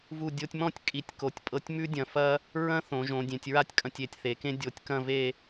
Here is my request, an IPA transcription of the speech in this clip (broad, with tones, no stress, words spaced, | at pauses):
vu˧˩dʲo˧tʲmɔ̃˥˧tʲ kʼi˩˧tʲ ko˩˧tʲpʼɤ˧tʲ mʉ˥dʲɐ̃˧˩fɐ˥ | ɹɐ̃˥θõ˩˧ ʒõ˩˧dʲẽ˩˧tʲɹa˥tʲkʼɐ̃˧tʲ e˧˩tʲθe˩˧kẽ˥ dʲo˧˩tʲkɐ̃˥˧ve˥˧